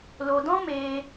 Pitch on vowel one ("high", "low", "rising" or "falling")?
low